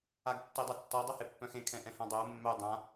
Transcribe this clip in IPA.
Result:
a ɡ tː e dˤ ʌ tː ɔ dˤ œ h e pː œ̃ x ẽ kʰ ɛ̃ ʔ ɛ̃ h ã dˤ œ ʊ̯ mː œ dˤ ã

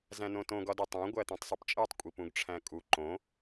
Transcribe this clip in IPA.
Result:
z æ̃ n õ t õ ɡ ɒ d e tˤ æ̃ ɡʷ æ t̪ ũ tˤ sˤ u p t͡ʃʼ e tˤ kʷʼ i p ũ ɡ ʈ͡ʂʰ æ̃ kʼ u ǃ õ

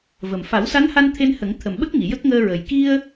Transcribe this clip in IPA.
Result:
v ə˨˩ m f a˨˩˦ w s a˧˥ n h a˧ n t̪ʰ e˧ n h ə˨˩˦ ŋ t̪ʰ ə˨˩ m ɓ ə˦˥ k̚ ŋ i˨˩˨ j ə˦˥ k̚ ŋ əː˧ ɹ ə˨˩ j k i˧ ə̯

